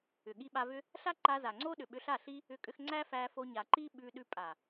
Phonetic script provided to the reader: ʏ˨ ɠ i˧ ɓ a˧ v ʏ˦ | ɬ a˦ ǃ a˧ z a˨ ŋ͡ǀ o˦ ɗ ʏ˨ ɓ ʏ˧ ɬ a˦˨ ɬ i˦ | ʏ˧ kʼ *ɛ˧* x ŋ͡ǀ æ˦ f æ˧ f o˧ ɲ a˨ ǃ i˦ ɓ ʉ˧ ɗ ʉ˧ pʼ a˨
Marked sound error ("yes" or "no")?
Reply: yes